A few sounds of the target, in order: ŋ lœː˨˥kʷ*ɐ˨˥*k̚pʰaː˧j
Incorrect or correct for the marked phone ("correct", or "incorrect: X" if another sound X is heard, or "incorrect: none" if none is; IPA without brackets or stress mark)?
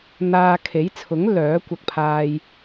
incorrect: ɐ˧